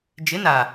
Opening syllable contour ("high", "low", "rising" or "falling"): rising